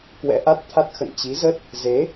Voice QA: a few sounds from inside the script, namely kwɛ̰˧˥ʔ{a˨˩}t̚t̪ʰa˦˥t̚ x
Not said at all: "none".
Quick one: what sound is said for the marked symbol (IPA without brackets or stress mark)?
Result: a˦˥